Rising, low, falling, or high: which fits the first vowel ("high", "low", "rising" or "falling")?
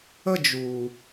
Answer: falling